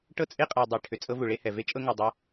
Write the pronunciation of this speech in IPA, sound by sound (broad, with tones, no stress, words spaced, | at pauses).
ʈɤ˦t͡sʼe˦qʼa˨ dˤɛ˨ʈʰʏ˨ t͡sʼɤ˦vu˨ɭe˦hɛ˨ ve˦ t͡ʃʼɤ˦ŋɤ˨ dˤɤ˦